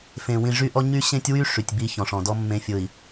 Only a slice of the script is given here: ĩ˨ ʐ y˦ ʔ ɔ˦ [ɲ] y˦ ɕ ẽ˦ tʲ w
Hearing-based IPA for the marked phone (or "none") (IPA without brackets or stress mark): ɲ